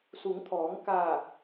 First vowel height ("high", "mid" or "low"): high